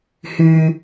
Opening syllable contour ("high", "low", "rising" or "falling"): low